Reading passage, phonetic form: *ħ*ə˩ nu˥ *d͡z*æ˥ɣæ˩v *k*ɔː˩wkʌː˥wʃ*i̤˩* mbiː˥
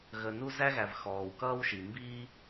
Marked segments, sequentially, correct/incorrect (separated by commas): incorrect, incorrect, incorrect, incorrect